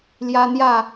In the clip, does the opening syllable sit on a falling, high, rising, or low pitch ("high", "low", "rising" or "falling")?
high